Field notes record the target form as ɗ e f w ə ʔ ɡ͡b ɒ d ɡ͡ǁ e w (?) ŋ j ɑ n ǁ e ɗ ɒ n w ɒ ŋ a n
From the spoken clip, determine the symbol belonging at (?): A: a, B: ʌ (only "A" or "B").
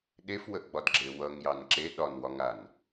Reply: B